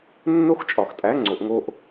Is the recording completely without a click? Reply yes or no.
no